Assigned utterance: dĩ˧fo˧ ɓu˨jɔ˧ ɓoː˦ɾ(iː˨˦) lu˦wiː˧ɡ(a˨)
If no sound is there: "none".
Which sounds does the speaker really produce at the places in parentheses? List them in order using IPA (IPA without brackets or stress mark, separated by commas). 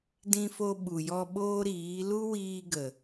iː˨˦, ə˨